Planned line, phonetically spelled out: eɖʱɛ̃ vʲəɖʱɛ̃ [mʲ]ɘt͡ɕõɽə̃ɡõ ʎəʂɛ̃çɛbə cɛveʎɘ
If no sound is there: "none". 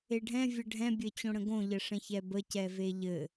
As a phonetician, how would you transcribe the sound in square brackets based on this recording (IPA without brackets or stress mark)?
bʲ